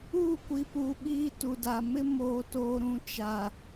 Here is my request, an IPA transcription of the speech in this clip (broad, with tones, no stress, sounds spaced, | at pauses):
uː˦˨ kʷ i˨ p uː˨ ɓ iː˦ t u˨ d a˨ m ɪ˦ m oː˨ t oː˨ ɾ ũ˦ t͡ʃ a˨